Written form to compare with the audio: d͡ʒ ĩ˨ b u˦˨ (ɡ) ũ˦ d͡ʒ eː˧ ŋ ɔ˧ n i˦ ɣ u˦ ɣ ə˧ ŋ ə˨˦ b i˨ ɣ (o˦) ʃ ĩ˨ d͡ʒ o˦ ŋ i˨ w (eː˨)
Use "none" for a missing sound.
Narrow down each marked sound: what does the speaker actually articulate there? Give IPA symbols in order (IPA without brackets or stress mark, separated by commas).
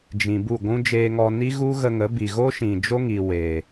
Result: ɡʷ, o˦, eː˨